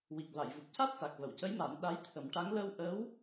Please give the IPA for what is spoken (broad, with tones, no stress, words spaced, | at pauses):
wi˨˩k̚va˨˩˨jvu˨˩p̚ca˦˥t̚ sa˨˩k̚və˨˩˨wcə˧˥jma˨˩˦n ɗa˧˥jt̪ʰə˨˩˦mʈa˧˥ŋ lə˧wʔə˧˥w